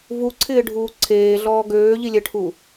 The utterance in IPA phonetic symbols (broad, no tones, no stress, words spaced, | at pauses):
vuǀʰɪːɖʱuː ǀʰeːɮɔː ɡøːʎilʲɛʈʰu